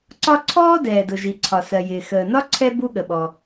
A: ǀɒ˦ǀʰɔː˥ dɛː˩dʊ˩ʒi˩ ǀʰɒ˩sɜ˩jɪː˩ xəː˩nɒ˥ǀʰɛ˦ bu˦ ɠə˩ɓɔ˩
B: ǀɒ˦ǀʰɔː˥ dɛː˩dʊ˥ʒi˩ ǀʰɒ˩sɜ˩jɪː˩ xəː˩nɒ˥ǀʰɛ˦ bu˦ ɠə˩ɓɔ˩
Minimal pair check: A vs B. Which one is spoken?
A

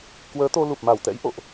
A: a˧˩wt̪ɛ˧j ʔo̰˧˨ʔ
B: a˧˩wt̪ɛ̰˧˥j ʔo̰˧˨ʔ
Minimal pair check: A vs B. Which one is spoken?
B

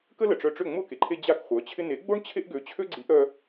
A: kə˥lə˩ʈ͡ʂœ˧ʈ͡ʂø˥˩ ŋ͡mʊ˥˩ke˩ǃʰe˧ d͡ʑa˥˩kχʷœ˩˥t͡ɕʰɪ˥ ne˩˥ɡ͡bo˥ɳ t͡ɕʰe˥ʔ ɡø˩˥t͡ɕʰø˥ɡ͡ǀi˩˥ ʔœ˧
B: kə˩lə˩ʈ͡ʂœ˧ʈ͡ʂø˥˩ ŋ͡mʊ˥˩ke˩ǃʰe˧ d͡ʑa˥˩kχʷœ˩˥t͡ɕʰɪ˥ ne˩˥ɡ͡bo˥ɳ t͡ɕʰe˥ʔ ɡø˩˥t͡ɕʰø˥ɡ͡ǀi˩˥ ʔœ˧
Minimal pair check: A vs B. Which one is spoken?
A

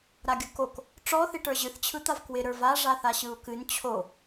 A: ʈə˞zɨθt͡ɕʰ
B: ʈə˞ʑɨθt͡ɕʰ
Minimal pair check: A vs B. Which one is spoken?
B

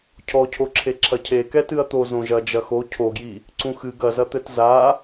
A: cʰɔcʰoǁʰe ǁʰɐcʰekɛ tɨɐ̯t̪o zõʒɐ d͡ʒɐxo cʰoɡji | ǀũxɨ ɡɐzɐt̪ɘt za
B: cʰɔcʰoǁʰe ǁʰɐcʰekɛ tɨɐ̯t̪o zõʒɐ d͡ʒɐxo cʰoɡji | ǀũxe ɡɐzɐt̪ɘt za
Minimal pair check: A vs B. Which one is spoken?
A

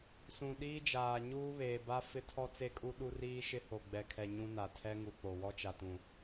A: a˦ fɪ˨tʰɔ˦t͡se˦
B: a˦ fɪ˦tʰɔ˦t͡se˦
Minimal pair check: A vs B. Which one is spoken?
B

